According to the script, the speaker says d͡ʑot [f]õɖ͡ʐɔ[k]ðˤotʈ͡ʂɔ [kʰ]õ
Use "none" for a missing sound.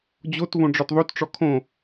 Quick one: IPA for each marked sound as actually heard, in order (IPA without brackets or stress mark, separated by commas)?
v, t, kʰ